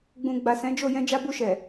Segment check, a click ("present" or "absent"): absent